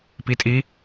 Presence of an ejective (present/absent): present